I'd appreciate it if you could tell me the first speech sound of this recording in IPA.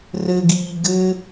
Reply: r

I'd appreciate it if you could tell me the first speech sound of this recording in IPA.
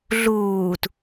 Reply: ɮ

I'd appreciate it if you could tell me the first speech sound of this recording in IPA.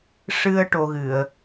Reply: ʂ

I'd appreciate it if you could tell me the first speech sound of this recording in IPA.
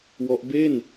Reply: w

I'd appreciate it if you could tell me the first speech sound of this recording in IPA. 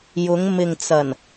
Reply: j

